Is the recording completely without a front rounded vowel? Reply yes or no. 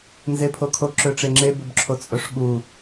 no